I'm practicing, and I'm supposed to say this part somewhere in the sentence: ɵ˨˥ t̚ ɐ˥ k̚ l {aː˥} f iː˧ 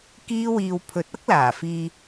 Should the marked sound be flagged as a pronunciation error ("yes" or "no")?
yes